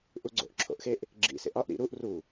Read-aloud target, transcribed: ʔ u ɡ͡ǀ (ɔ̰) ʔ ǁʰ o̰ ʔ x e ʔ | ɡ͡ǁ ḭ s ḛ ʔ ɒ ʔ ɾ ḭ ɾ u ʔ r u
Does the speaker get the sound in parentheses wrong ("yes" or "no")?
yes